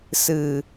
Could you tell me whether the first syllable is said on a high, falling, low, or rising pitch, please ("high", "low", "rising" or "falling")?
low